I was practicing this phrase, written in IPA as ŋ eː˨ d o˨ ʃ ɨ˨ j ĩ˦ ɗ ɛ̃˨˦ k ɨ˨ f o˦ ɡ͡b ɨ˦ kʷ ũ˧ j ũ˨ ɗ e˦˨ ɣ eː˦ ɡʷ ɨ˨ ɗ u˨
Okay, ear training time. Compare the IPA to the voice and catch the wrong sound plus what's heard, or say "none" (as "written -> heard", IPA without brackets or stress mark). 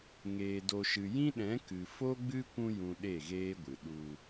none